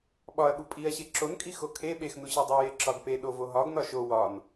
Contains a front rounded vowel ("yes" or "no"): no